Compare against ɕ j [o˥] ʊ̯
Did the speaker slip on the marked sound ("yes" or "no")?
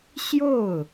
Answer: yes